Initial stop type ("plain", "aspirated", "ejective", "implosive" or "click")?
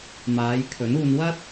aspirated